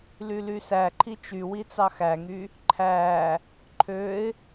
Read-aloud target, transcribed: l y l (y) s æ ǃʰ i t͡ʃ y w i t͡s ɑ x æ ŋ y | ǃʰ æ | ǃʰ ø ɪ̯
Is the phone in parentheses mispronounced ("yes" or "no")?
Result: no